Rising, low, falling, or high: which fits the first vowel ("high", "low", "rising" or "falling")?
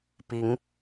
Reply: rising